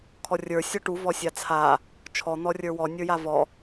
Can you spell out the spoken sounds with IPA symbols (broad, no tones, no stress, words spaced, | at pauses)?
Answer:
kʰɔrʲə˞ sʲɔʈu vɔsʲat͡sʰa | t͡ʃʰɔ n̪ɔrʲə˞wɔ nʲə˞javɔ